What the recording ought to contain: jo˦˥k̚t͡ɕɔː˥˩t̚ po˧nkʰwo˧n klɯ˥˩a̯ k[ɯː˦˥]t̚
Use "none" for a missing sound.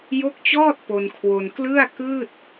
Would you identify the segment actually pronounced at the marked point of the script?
ɯː˥˩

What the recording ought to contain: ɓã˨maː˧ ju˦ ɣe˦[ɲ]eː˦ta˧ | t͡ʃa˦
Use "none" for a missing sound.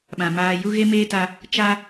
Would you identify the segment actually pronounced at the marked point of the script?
m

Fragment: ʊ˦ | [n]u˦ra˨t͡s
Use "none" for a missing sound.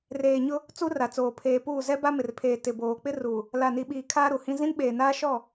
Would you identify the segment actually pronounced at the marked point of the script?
t͡s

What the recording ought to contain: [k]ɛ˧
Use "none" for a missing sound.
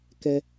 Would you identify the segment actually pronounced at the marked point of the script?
k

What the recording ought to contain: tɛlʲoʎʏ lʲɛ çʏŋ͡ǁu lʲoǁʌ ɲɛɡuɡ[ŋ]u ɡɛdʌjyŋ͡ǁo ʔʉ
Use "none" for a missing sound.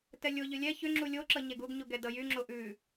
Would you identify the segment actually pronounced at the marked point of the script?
ɲ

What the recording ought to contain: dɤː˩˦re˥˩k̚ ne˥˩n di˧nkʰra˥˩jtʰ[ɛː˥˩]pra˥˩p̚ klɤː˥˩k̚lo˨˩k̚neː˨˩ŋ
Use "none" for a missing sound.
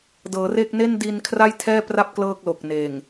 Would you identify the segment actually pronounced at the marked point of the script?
ɛː˥˩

